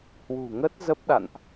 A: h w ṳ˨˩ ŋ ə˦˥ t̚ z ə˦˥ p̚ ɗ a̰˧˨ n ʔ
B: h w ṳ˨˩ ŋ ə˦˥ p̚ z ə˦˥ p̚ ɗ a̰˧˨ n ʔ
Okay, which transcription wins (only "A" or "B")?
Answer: A